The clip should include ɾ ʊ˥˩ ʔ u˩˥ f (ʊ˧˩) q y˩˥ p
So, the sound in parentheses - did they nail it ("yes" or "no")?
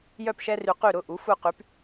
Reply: no